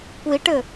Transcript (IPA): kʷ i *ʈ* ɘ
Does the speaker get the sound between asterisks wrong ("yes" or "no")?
no